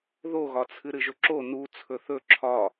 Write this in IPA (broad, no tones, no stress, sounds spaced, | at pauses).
ð o ɣ ɒ t͡sʰ ɨ ɾ ɨ ʒ ɵ ǁ o n u t͡sʰ ɵ θ ɵ ǁʰ ɒ